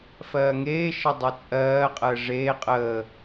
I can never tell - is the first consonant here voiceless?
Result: yes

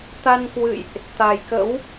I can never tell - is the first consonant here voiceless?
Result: yes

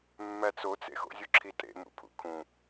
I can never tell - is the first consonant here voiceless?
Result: no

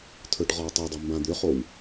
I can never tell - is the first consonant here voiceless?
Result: yes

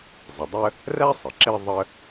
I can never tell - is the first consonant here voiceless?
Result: no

